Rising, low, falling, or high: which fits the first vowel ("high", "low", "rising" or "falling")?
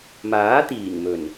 rising